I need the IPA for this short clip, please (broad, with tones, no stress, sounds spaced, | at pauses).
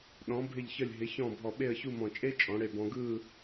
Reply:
ɗ ɔ̃˩˧ bʱ ɪ˧˩ ʎ ç ə˧˩ lʲ ɦ ɪ˩˧ ç ɔ̃˧˩ bʱ ɔ˧˩ ɓ e˥˧ ə̯ ç u˥˧ m ɔ̃˧˩ t͡ʃʼ e˥ t͡ʃʼ ɔ̃˩˧ ɽ e˧˩ b ɔ̃˧ ɡ ɯ˥˧